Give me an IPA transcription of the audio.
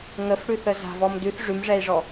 ŋ ə f ɽ ʉ θ ə z a̤ v ɔ m d ʉ θ ʐ ʉ m ʐ ɛ i̯ ʐ ɔ

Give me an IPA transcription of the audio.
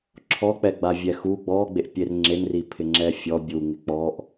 ǁʰ ɔ k͡p ɛ ɡ͡b a vʲ ɛ x u ɡ͡b ɔ ɡ͡b e ʔ pʲ e r ŋ͡ǁ e n r i pʰ ɪ ŋ͡ǁ ɛ fʲ ɔ bʲ u ŋ ɪ k͡p ɔ ʔ

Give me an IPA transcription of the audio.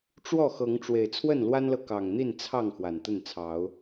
ʈ͡ʂ w ɔ˥˨ x ɤ˨˦ ŋ ʈ͡ʂ w e˨˩ ɪ̯ t͡sʰ w ə˥˨ n l w a˦ n l ɤ˨ k ɑ˨˩ ŋ n̪ i˥˨ n t͡sʰ ɑ˥˨ ŋ x w a˨˩ n t̪ ə˥˨ n t͡sʰ ɑ˨˦ ʊ̯

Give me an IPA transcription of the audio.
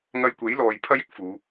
ŋ ɐ˧ j kʷ e˨˥ j l ɔː˨ j pʰ ɐ˥ j ɪ˥ k̚ f uː˨˧

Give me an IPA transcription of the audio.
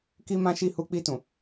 k i˦ m ã˦ ʃ i˦˨ h u˧ k͡p i˧ t ũ˨

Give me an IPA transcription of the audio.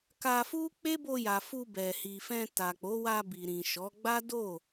k a˧ f u˦ k͡p e˦ b o˧ j a˨ f u˧ b ɛ˨ h i˨ f ɛ̃˧ t a˨ k͡p o˨˦ w a˧ b i˨ ɾ ĩ˨ ʃ ɔ˨˦ ɡ͡b a˦ d o˦˨

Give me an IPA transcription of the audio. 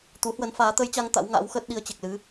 t̪ u˨˦ h w ə˨˦ n f aː˨˦ t̪ ə˧ j t͡ɕ a˧ ŋ t̪ a̰˧˥ w ŋ a̰ː˧˥ w x əː˦˥ t̚ ɗ i˧ ə̯ t͡ɕ e˨˩ k̚ l ɨ˨˦

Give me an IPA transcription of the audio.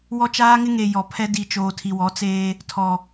w ɔ˦ t͡ʃ aː˦ ŋ ɪ˦ ŋ e˨ j ɔ˨ pʰ ɛ˦ d i˨ t͡ʃ oː˨ tʰ i˨ w ɔ˨˦ t͡s eː˦ | tʰ ɔ˨

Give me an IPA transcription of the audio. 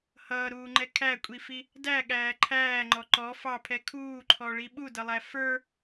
h ʌː ɾ uː ŋ͡ǃ ɛ kʰ æ kʷʼ i f i | d æ ɠ æː ǃʰ æː ŋ͡ǃ ɔ ǃ ɔ f ɑ pʰ ɛ kʰ uː ǃʰ ɔ ɭ i ɓ u d ʌ lˠ æ f ə˞

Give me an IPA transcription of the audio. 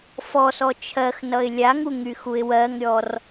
f ɔ s ɔ t͡ʃʰ ɜ x n ʌ ɪ̯ lʲ a ŋ u ŋ y x u ɪ̯ w ɜ ŋ ɾʲ ɔ r

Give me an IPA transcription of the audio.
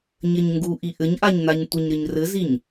ɲ ɘ ɲ ŋ ɡ u ʔ i ʔ ɘ ɲ ʔ a ɲ n a ɲ tʷ ɘ ɲ ɾ ɘ ɲ r ɘ z i ɲ

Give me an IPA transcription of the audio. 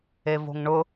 e v o̤ ŋ ɳ ʊ

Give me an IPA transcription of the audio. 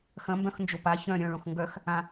x ɐ̃ m b œ̃ x n d͡ʒ o p a ç œ̃ ɾʲ œ̃ ɭ õ x ŋ ɡ œ x | ã

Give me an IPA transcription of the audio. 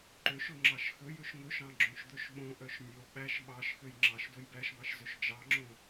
ǃ ø ʃ ɵ ŋ͡ǁ ɑ ʃ x ɵ j ɵ ʃ ŋ ɵ ʃ ɑ̃ ɡ͡ǁ õ ʃ d̪ ɵ ʃ ɓ õ ʔ œ ʃ nʲ o ɓ æ ʃ ɓ ɑ ʃ x ø j ŋ͡ǁ ɑ ʃ d o j b æ ʃ b ɑ ʃ z ø ʃ d͡ʒ ɑ ŋ͡ǁ õ

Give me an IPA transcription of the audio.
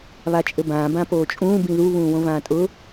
β a t͡ʃʼ ɘ b ãː b ã p oː t͡ʃʼ ũː b ĩ ð u β ũː w õ v ãː tʼ ʊ

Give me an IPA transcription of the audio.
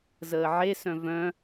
z əː ʕ e s œ̃ v œ̃

